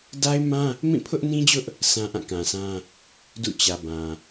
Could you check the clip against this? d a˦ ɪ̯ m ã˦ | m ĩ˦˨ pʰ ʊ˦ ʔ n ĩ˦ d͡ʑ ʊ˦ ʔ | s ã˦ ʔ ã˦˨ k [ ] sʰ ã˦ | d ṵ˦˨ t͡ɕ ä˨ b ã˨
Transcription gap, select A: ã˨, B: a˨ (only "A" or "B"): A